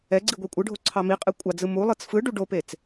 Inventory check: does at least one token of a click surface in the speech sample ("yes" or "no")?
yes